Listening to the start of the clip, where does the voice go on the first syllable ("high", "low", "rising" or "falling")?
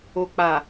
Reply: low